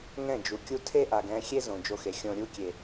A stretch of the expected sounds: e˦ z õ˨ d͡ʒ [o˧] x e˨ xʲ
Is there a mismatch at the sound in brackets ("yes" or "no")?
no